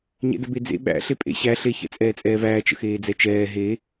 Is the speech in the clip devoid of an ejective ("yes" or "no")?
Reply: no